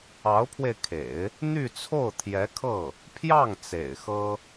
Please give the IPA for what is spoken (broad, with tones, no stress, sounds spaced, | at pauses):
ɑ˧˥ ʊ̯ pʰ w e˧ ɪ̯ kʰ ḛ˨˩˦ ɪ̯ | n̪ y˥˧ t͡sʰ o˥˩ ʊ̯ t̪ʰ j ɛ˧˥ kʰ ɤ˥˩ | pʰ j ɑ˥˩ ŋ t͡s ḛ˨˩ ɪ̯ x ɤ˥